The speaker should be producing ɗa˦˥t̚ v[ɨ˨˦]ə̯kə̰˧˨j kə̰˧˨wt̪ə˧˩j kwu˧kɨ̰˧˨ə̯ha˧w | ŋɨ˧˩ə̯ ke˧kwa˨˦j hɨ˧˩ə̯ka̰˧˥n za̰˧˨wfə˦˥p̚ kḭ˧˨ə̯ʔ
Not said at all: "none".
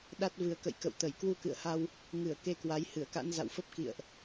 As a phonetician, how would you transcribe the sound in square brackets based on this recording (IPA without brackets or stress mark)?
ɨ˨˩